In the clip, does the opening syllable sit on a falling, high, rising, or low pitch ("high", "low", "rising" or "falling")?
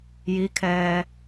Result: rising